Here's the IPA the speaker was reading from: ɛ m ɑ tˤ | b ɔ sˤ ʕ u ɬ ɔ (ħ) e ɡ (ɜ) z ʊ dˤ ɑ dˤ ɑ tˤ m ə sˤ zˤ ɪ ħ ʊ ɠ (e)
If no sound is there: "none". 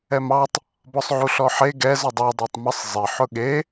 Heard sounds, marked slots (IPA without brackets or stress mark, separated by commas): ħ, ɛ, e